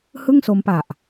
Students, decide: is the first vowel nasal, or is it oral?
oral